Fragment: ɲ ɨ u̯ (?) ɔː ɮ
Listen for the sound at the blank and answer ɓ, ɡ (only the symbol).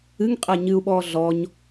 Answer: ɓ